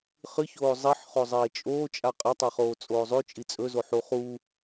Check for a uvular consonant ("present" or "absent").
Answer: present